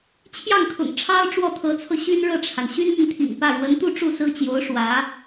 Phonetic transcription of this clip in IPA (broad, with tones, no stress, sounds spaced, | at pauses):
t͡ɕʰ j ɑ˥˩ ŋ kʰ ʊ̰˨˩ ŋ ʈ͡ʂʰ ɑ˥ ʊ̯ ʈ͡ʂ w ɔ˥˩ t̪ʰ ɤ˧˥ t͡sʰ ɤ˧ ɕ y˥ n ɻ ɤ˥˩ ʈ͡ʂʰ a˩ n ɕ y˥ n m y˨ n t̪ʰ ḭ˨˩ ŋ p ä˥˩ ɻ w ə˧˥ n t̪ u˥˧ ʈ͡ʂ u˥˩ s ɹ̩˥ t͡ɕ j o˧˥ ʊ̯ ʂ w ä˧˥